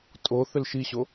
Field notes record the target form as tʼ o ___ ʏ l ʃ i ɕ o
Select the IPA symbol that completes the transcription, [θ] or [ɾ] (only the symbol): θ